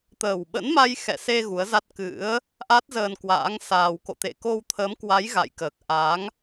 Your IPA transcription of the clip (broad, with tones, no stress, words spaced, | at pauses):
t̪əː˨˩wɓə̰˧˥nma˧j xɛ̰˧˨se˧ ɣu˨˦ə̯za˦˥t̚ kɨ̰˧˥ə̯ | ʔa˦˥t̚zəː˧nkwa̰ː˧˥ŋsaː˧w ko̰˧˨t̪ḛ˧˨ko˧wt̪ʰə˨˦m kwa˨˦jɣa̰˧˨jkəː˨˩k̚ ʔa˨˦ŋ